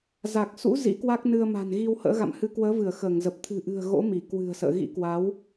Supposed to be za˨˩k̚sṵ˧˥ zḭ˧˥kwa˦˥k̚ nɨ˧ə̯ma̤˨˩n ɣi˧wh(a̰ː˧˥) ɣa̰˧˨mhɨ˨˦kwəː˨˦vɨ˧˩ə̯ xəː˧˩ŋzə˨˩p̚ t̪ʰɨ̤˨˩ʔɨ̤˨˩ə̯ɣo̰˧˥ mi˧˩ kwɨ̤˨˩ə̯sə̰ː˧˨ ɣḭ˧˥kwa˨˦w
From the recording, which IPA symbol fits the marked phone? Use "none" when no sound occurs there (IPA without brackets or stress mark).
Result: ə̰ː˧˥